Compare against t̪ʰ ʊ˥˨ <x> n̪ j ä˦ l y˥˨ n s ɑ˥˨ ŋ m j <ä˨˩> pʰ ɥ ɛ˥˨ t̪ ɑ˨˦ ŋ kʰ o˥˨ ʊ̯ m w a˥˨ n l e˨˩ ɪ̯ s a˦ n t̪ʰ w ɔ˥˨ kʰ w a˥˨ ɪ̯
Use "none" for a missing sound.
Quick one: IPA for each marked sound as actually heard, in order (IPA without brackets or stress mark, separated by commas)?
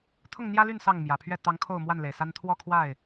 ŋ, ä˨˩